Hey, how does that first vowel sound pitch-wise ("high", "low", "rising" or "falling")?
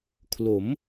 rising